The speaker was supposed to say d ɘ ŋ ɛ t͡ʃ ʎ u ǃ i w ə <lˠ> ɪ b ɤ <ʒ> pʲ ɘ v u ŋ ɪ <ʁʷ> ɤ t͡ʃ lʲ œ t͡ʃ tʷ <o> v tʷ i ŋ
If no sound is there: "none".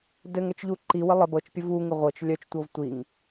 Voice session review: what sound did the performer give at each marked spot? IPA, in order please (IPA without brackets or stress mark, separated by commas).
lˠ, t͡ʃ, ʁʷ, ɤ